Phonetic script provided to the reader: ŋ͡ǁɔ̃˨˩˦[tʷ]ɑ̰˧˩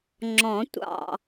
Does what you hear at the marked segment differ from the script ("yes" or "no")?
no